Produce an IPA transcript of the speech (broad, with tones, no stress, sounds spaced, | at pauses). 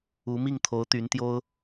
u˧˥ m i˥˩ ŋ t̪ʰ o˧˥ ʊ̯ t̪ y˧˥ n t̪ j o˥ ʊ̯